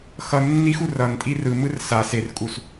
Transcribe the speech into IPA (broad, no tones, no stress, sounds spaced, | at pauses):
x ʌ nː i x u r ʌ n tʼ i r ɯ m ɯ r s a s e r kʼ u s